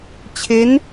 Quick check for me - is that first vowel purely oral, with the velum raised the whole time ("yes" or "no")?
yes